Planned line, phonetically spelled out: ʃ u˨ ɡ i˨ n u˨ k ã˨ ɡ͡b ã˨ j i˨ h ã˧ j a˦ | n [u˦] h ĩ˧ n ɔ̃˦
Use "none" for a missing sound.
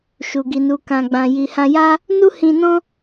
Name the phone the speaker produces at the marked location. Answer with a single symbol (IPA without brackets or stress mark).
u˦